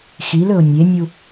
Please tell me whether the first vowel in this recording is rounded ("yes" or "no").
no